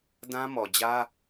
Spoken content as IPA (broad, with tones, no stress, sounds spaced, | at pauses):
d ã˦ m ɔ˨ d͡ʑ ä˦